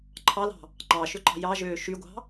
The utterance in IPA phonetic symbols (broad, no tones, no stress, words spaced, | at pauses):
ǃʰɑlɑ̤ | ǃɑʃøǃɑ̤ jɑʒøː ʃyɡʷɑ̤